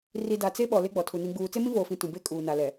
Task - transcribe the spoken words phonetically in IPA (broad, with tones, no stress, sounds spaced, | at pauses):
r i˨ d a˨ t͡s e˦ ɓ ɔ˨ l e˦ ɡ͡b ɔ˨ tʰ u˨ n ĩ˨ ɡ͡b uː˨ t͡s e˦ m ĩ˦ v oː˨ f ĩ˨ t ũ˨ b e˦ kʼ uː˨ n a˨ l ɛ˨